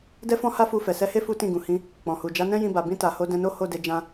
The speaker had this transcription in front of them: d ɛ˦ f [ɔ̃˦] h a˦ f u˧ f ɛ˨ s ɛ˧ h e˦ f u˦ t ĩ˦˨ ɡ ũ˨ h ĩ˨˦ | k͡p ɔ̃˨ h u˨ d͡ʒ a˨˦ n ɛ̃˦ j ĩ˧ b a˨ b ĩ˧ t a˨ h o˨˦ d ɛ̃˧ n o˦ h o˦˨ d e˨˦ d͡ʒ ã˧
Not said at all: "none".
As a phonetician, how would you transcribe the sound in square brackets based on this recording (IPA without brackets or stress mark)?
ɔ̃˦